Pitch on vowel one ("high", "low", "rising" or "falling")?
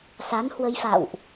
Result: rising